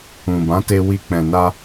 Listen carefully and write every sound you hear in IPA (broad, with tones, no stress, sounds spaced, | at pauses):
ũ˨ b ã˨˦ t e˧ w i˧ k͡p ɛ̃˨ n a˧